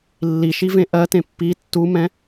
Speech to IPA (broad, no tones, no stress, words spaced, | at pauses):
lːiʃivẽ ʔɜtẽ pːi tːumɛ̃